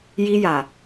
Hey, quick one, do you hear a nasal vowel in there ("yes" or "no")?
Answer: no